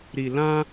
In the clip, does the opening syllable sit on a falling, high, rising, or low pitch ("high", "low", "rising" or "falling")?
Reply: low